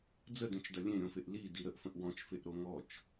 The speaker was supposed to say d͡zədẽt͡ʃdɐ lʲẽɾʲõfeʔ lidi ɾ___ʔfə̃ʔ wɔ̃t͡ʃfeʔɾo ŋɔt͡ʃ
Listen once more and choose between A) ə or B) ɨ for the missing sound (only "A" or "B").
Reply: A